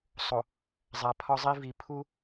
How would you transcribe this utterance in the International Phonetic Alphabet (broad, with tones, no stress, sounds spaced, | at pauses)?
sˤ o˨ | zˤ æ˨ pʰ ɒ˦ zˤ i˦ v i˨ pʰ u˦